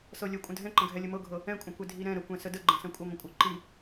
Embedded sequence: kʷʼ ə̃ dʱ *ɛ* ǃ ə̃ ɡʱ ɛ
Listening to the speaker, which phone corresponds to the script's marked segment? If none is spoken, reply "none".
ɛ̃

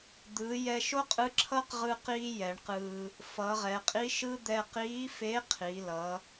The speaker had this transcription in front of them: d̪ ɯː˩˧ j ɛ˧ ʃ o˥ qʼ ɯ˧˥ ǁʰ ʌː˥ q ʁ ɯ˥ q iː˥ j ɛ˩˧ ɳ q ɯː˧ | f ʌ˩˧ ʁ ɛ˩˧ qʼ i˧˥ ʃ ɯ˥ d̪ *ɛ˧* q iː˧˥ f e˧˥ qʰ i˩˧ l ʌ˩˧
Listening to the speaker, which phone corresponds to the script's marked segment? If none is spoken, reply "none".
ɛ˧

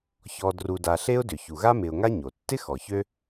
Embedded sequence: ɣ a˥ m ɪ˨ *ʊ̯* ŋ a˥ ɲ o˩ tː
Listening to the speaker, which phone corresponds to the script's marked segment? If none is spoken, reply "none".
ʊ̯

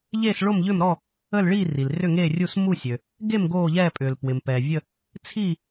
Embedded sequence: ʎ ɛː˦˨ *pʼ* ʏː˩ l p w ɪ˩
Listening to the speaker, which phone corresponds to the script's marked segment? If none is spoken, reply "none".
pʼ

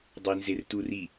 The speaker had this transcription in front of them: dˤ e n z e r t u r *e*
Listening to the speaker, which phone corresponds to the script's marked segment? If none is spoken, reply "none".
i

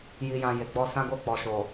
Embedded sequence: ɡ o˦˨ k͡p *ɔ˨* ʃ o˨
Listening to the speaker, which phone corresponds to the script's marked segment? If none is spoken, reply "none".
ɔ˨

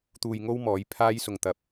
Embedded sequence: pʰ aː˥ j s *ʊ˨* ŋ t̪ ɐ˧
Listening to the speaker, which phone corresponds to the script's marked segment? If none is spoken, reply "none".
ʊ˧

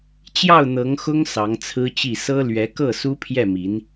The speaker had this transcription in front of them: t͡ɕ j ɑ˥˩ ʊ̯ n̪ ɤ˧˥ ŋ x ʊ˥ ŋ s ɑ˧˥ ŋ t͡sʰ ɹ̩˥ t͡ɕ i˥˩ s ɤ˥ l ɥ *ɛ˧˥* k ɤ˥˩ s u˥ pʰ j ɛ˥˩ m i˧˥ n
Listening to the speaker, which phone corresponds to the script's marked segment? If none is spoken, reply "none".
ɛ˧˥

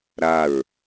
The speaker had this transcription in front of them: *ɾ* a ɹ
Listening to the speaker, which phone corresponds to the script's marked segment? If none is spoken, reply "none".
ɾ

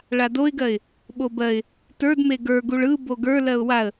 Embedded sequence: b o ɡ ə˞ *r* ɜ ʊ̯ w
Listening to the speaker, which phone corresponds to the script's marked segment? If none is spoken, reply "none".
l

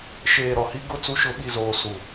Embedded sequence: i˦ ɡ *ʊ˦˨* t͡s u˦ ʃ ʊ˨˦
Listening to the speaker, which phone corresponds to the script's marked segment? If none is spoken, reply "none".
ʊ˦˨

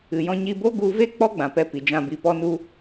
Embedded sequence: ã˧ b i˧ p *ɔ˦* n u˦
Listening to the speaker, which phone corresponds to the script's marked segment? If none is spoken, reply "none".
ɔ˦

